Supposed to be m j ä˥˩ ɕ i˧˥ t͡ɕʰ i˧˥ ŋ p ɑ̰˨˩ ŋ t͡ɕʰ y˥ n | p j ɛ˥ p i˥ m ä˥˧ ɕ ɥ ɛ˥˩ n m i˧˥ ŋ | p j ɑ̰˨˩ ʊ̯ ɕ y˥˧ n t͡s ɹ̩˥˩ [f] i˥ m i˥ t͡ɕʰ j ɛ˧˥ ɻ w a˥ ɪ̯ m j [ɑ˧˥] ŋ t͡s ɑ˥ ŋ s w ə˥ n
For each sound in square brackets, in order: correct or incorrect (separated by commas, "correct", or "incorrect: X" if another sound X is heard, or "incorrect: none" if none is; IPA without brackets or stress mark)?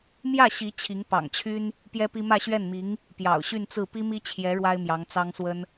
incorrect: p, correct